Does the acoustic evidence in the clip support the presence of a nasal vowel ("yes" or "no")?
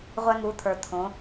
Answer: yes